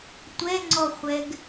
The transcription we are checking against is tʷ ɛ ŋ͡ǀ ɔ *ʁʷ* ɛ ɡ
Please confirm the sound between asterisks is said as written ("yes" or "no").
no